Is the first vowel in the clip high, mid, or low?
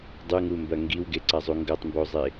high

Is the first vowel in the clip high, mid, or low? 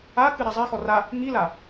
low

